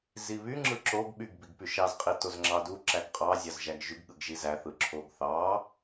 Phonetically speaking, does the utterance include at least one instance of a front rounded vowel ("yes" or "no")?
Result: yes